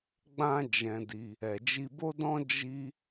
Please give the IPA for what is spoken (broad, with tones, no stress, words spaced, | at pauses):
ɡ͡bã˧ d͡ʒɛ̃˧di˧ | ɛ˨d͡ʒi˧bo˦dɔ̃˦ d͡ʒi˦